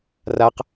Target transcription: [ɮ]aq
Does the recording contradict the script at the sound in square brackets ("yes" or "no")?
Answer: yes